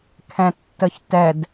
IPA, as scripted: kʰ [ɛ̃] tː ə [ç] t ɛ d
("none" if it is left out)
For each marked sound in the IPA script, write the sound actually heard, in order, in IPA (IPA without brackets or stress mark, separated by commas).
ɛ̃, ç